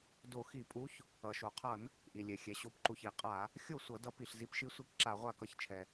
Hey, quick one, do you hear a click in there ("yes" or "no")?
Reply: yes